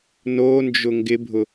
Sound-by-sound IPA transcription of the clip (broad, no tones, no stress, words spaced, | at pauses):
nond͡ʒʊ ŋɡɪbʱʊ